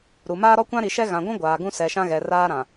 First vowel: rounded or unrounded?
rounded